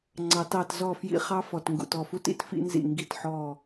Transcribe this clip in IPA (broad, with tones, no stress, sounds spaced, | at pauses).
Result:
ŋ͡ǀ ɑ˨ t ɑ˦˨ t z ɔ˦˨ f j ḭ˦ χ ɑ˦ f ɔ˨ t ŋ ɡ ṵ˨ t ɔ˦˨ f u˦ t ḭ˦ t f ḭ˦ n z ḭ˦˨ ŋ ɡ i˦˨ t ħ ɔ˦˨